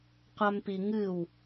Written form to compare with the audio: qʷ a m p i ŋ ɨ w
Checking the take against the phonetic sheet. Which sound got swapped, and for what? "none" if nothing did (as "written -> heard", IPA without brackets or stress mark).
none